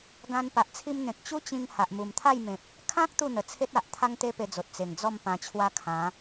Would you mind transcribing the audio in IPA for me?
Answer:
ɡã˧n pa˨ʔt͡sʰi˧mn̪ẽ˨k̚ t͡ɕu˦t͡ɕĩ˧ŋ ha˨ʔmu˨˩mt̪ʰa˥˧jmẽ˨p̚ | kʰã˦k̚ t̪u˥˧n̪ə˨˩t͡sʰe˦t̚a˨ʔ t̪ʰa˦ŋt̪e˦pe˧d͡zo˨t̚ t͡se˨˩ŋd͡zɔ˥˧mpã˧t͡ɕʰwa˦ kʰã˨˦

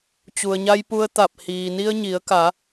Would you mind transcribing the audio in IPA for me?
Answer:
t͡ɕu˩ə̯ɲa˧jpu˧ə̯t̪a˧˩p̚ hiː˩ni˧ə̯ɲi˩˧ə̯ka˩˧

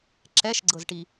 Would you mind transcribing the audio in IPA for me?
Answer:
ǁɛʃɡ͡ǀɤzʈi

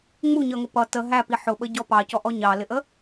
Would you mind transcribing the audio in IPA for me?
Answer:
ŋ͡muɲʌŋʊ pʌ tə ɦæpi ħʊɓəɟɔ pɑcɔʔɔ ɲɑlɪʔə

